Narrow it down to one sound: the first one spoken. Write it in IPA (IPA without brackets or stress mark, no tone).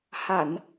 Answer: h